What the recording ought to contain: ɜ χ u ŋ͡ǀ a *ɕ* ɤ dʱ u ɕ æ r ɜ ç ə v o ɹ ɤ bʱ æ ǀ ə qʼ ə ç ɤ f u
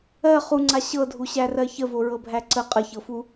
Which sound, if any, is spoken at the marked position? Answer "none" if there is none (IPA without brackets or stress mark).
ɕ